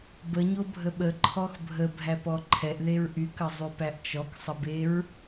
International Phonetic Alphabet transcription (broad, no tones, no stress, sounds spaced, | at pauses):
b ə ɲ o bʱ ə ɓ ə ǃʰ ɔ x bʱ ə bʱ æ p ɔ ǃʰ ɛ ʔ ð e ɹ ʔ y k ə zˤ y p æ ʔ t͡ʃ ɔ k sˤ ə b e ɹ